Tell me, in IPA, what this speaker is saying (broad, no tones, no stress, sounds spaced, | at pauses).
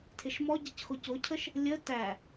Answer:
tʰ ɪ ʃ m ɔ ɟ ɪ c x ʊ c ʊ cʰ ə ʃ | lʲ ə t æ